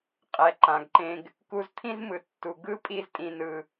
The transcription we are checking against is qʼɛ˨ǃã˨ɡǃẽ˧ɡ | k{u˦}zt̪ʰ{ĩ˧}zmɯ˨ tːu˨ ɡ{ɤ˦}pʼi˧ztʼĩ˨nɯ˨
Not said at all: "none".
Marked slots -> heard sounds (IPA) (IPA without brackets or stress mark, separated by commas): u˧, ĩ˦, ɯ˦